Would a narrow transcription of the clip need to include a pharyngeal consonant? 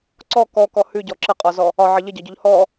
yes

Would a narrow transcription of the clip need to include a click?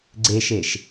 yes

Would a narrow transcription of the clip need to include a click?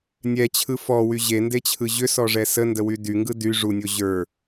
no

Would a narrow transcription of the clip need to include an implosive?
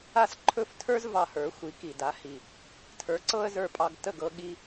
yes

